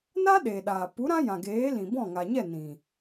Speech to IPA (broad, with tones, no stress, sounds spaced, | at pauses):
n a˦ ɗ eː˨ ɗ aː˨ p u˨˦ ɾ ã˦ j ã˨ ɡ eː˨˦ l ĩ˨ b ɔ̃˦˨ ŋ a˨ ɲ ɛ˦˨ n ĩ˨